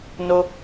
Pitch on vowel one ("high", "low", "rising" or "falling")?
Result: high